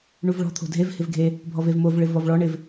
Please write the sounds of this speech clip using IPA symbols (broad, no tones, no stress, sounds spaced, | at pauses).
ɳ u v ɭ ɔ̤ t̪ʰ o̤ dʱ e v h ɪ v ɡʱ e | bʱ ɔ v e v m o v ɭ ɪ v ɔ v ɭ ɔ ɳ ɪ v